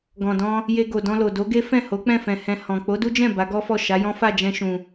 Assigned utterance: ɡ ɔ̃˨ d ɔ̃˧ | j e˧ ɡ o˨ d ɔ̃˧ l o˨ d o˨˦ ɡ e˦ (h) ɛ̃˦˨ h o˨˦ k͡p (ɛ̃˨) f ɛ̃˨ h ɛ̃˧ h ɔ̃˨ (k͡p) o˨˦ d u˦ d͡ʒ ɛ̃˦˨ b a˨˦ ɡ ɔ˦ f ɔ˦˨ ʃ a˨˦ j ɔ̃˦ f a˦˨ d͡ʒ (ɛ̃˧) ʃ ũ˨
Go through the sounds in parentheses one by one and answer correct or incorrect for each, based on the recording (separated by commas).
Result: incorrect, incorrect, correct, correct